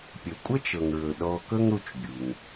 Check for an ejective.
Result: present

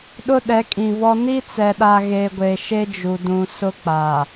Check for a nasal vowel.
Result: present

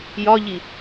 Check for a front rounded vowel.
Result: absent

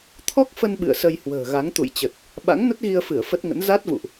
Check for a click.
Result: absent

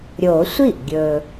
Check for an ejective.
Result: absent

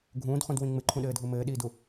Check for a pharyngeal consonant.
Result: absent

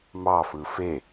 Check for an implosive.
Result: absent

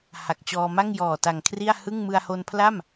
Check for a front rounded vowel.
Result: absent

